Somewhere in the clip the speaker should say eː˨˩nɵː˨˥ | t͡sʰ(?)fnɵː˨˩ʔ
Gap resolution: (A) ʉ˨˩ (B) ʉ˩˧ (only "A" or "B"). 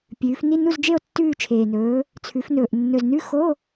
B